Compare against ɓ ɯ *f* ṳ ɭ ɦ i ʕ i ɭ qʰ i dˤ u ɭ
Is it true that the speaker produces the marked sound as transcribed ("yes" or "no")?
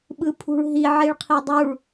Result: no